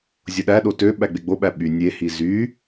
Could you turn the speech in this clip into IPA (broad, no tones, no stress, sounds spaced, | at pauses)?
zʲ o ɗ æ ɗ o t ø ɓ æ ɡ͡b e ɡ͡b o ɓ æ ɓ y nʲ e h i z y